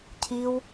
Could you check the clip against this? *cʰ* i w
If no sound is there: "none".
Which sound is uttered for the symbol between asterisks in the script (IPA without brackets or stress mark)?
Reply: cʰ